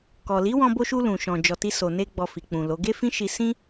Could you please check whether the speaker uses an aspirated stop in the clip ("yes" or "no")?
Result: no